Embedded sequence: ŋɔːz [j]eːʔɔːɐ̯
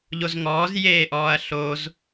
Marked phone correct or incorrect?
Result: correct